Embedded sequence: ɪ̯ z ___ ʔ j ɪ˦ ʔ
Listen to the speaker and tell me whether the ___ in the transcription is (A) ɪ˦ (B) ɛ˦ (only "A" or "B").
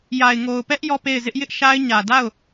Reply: A